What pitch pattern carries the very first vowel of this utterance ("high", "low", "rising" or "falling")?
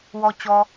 low